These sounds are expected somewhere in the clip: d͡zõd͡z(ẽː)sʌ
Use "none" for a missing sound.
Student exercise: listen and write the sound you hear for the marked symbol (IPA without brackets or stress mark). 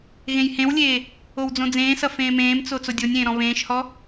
ẽː